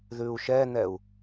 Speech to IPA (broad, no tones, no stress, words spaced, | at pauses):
ðʉu̯ʃɛn̪ɛu̯